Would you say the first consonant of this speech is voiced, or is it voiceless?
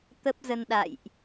voiceless